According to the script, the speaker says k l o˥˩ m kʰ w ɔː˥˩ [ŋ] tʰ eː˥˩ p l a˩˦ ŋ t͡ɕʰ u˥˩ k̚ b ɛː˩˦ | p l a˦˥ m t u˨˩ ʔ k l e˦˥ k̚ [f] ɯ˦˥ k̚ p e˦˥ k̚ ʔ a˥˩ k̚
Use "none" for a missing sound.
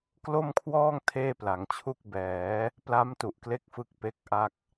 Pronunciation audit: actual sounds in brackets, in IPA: ŋ, f

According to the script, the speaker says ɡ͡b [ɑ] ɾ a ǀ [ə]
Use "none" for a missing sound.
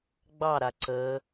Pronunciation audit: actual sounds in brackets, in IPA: ɑ, ə

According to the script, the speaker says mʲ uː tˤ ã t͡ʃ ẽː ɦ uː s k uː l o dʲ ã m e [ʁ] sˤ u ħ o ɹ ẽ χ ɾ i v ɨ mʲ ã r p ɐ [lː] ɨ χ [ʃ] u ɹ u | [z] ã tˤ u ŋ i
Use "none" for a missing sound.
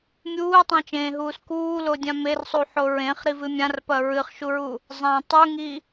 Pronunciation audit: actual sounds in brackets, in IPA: r, ɹ, ʃ, zˤ

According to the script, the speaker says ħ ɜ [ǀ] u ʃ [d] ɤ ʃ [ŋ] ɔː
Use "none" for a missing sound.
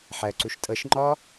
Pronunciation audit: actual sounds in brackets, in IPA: ǀ, tʼ, ŋ͡ǃ

